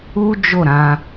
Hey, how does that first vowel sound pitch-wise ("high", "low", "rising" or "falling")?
high